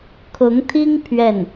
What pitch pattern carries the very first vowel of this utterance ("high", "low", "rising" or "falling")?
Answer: rising